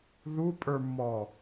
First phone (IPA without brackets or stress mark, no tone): ð